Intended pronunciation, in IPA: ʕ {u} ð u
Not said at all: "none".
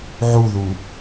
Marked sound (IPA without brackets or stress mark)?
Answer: u